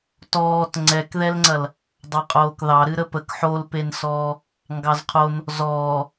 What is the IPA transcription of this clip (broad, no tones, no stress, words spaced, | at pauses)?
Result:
tɔːt ŋ͡ǀɛkðɛlŋ͡ǀɐl | dˤɑqʼoːkðɑ ɾɨɾəpək ħolpensɔː | ŋɡɑzqʰon | zɔː